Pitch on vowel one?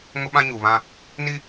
high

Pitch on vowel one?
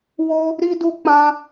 high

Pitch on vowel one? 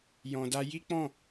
low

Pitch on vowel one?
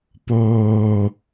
high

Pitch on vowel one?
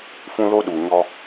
high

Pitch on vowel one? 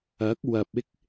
rising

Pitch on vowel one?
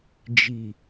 low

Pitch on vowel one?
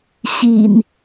low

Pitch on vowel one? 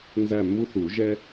falling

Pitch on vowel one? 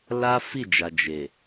high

